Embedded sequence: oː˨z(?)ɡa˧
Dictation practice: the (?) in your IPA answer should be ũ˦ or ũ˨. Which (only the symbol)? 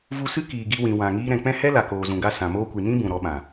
ũ˨